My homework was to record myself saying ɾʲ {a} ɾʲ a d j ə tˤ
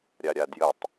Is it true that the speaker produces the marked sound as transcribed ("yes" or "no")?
yes